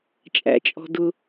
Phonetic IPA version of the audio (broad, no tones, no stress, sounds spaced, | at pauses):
t͡ʃʼ æ̰ t͡ʃʼ ɔ̤ d ʊ